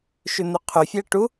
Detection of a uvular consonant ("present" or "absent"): present